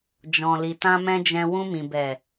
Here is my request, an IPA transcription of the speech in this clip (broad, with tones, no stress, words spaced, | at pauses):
d͡ʒɔ̃˨li˨tã˧ mɛ̃˧d͡ʒɛ̃˧wũ˧mĩ˨ bɛ˨